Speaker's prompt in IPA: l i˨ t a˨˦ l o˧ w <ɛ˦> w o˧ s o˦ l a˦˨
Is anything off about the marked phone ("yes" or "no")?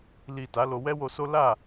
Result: no